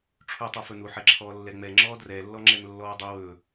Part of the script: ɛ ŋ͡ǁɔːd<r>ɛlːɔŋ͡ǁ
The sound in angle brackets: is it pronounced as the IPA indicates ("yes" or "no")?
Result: yes